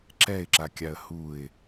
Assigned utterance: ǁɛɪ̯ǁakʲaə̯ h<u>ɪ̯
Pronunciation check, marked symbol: correct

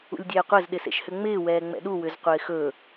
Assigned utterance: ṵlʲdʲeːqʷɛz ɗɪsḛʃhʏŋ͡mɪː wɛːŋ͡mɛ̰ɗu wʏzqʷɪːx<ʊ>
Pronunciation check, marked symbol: incorrect: ɵ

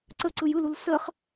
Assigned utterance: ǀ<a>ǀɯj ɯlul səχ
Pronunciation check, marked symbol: incorrect: ə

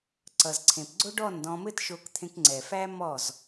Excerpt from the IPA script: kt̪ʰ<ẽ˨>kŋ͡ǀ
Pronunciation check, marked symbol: incorrect: ẽ˧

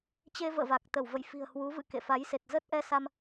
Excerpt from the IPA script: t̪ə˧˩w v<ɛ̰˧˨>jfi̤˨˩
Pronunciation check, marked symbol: incorrect: ə̰˧˨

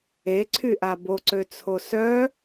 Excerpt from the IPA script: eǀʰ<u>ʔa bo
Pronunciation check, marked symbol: incorrect: y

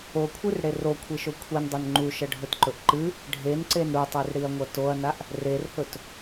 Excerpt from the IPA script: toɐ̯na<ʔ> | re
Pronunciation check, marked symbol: correct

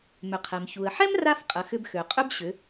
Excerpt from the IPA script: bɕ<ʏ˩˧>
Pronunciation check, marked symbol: correct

